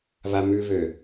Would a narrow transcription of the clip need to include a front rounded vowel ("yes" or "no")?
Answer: yes